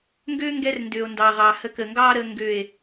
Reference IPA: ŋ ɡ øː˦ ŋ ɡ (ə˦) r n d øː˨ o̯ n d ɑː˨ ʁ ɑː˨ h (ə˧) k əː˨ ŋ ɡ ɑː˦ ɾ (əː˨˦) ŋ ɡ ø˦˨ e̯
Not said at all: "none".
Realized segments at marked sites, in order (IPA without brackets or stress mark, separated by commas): ɛ˦, ə˧, əː˧